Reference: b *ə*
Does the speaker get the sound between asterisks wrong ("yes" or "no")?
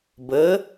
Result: no